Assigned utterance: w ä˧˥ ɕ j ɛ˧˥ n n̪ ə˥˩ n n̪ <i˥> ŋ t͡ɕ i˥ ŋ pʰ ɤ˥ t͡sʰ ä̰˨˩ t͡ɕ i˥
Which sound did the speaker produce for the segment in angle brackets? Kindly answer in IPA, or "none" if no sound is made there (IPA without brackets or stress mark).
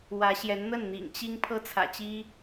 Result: ḭ˨˩